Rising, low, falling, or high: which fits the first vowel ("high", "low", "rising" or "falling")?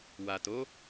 low